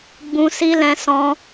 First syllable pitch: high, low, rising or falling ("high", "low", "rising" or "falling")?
high